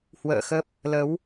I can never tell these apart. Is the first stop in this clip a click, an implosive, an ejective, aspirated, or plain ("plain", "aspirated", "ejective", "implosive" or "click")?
plain